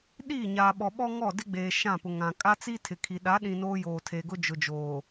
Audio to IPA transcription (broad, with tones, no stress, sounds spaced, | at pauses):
ɗ iː˦˨ ɲ aː˨ ɓ ɔ˨ ɓ ɔ˦ ŋ ɔ˦˨ d ɪ˦ ɡ͡b eː˨ ʃ ã˦˨ p ʊ˨ ŋ ã˨ kʼ a˦ t͡s i˦ tʰ ɪ˨ kʰ i˨ ɗ a˨˦ ɗ ĩ˨ n oː˦ j oː˨ tʰ eː˨ ɡ ʊ˦ d͡ʒ ʊ˨ d͡ʒ oː˨